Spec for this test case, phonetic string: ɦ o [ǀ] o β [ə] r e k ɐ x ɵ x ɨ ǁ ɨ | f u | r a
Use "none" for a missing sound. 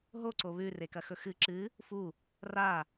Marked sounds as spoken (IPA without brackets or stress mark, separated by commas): ǀ, ʉ